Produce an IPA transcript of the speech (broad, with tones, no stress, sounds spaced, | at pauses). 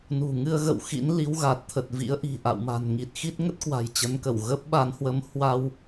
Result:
n ṳ˨˩ ŋ ɨ˧ ə̯ ɣ ə̰˧˨ w x ḭ˧˥ n l i˨˦ w ɣ a˨˩ t̚ t̪ʰ ə˨˩ t̚ v ḭ˧˥ ə̯ ʔ i̤˨˩ ʔ a̰˧˨ w m a̤˨˩ n ŋ i˨˩ t̚ x i˦˥ t̚ ŋ ə˦˥ t̚ k w a̤˨˩ j t͡ɕ ə˨˦ n k ə˧˩ w ɣ ə˦˥ p̚ ɓ a˨˦ n h w ə˨˦ m h w a˧ w